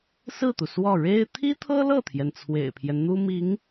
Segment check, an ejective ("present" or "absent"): absent